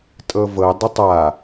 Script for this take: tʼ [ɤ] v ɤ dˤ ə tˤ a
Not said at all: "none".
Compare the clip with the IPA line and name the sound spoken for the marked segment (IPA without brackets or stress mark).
ɤ